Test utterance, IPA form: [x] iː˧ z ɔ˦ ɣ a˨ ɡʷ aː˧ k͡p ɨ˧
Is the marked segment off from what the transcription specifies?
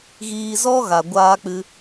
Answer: yes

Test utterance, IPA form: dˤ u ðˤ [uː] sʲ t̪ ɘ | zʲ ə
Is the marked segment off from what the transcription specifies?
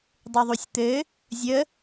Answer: yes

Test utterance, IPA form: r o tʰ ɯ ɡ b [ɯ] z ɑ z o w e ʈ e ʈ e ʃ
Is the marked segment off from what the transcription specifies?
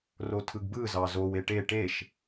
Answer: no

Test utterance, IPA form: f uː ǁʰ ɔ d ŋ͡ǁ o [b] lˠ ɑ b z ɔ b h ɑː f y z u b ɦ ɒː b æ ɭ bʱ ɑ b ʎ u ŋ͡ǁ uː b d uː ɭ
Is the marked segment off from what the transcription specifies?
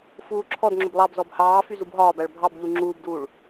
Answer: no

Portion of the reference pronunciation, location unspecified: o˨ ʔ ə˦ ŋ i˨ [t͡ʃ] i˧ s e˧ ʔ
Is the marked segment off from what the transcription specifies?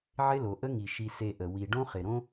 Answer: yes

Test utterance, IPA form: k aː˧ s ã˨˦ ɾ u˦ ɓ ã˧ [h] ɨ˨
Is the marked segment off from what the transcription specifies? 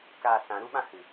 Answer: no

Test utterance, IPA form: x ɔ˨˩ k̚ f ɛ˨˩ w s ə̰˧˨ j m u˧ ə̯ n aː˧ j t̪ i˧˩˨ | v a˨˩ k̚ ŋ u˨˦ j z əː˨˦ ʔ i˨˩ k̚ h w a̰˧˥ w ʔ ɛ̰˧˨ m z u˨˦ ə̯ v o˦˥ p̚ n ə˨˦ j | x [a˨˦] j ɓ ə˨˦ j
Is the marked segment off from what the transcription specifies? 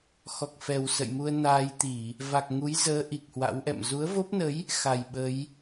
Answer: yes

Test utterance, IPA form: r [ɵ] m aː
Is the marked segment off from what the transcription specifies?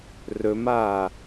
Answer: no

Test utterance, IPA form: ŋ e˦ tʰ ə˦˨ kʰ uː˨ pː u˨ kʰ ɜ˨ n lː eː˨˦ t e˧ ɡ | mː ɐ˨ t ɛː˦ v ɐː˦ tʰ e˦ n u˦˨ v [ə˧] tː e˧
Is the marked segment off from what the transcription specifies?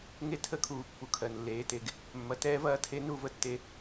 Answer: no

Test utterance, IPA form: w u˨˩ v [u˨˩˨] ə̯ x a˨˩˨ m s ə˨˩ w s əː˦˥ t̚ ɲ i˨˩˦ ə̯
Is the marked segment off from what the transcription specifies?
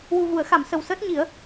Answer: no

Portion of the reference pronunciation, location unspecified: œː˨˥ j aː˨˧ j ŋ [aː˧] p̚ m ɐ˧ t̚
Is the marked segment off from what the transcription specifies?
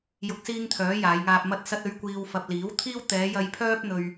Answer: no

